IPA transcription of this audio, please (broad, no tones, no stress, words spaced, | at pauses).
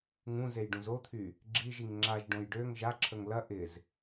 ŋũ zejɖũzot̪ʰy | ɡ͡ǁiʒiŋ ŋ͡ǁaʒɖõj ɖøŋ ʒaǁʰəŋ lɐ ʔɪz